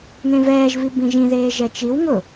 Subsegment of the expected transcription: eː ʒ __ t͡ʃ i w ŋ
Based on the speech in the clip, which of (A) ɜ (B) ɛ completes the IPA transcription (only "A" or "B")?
B